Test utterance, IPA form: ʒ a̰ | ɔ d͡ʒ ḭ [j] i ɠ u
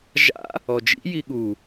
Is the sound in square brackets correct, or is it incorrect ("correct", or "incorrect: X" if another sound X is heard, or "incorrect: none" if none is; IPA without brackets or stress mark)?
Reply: correct